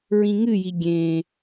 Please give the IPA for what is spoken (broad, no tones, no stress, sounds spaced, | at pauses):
ɹ ĩ ŋ ɨ j i ɡʲ ẽ